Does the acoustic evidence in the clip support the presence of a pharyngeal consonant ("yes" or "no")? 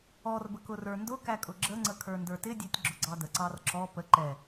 no